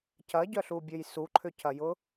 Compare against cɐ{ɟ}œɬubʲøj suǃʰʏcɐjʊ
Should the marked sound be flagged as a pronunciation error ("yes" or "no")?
no